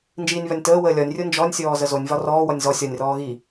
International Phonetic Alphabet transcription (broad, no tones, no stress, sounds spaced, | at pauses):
n d͡ʒ iː nʲ β ɒ nʲ t əː w əː lʲ ɒ nʲ rʲ o n d͡ʒ ɔ nʲ sʲ ɔː z ə z o nʲ v ɒ r ɔː w ɔ nʲ z ɔ sʲ ɒ nʲ r ɔː ɣ i